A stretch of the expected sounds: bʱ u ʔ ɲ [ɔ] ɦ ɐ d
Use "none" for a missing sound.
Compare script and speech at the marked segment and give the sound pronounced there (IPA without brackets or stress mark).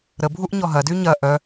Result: ɔ